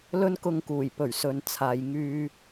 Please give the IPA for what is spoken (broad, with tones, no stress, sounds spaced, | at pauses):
l ɵ˥ n k ʊ˧ ŋ k uː˨˩ j p ɵ˨˩ ɥ s ɵ˨˧ n t͡sʰ aː˨ j ŋ yː˧